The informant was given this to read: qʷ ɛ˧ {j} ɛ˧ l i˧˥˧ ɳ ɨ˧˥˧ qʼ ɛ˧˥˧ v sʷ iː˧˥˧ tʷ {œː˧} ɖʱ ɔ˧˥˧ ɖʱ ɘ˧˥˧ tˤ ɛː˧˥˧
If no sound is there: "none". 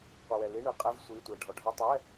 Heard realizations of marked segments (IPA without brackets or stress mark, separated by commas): w, ɛː˧